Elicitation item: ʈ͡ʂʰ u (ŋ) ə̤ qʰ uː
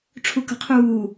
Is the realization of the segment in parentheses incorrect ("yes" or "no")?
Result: yes